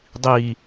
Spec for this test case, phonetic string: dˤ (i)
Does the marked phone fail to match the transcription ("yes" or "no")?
no